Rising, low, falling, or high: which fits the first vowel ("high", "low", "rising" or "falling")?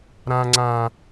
high